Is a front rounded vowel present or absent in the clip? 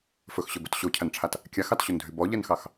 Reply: present